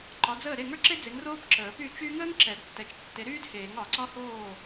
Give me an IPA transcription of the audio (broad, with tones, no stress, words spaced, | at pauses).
ǃɒ˨˥d͡zəː˥˩ ɾe˥˩ŋə˞˥ ǁe˥d͡ze˨˥ŋ roː˥pǁəː˨˩˦py˥˩ t͡ʃy˥ ŋəː˥ŋ ǁɛ˨˩˦dtːɛ˨˥t͡ʃ tːe˨˥ɾyː˥dheː˨˩˦ŋ ɒ˨˩˦ǀɒ˥hoː˥˩